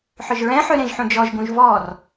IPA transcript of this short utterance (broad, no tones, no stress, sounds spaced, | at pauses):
ħ œ ʒ ɹ ɛ̃ ħ ø ɾ ẽ ʒ ħ ũ d͡ʒ ɔ ʒ ɡ ũ ʒ v ɔ r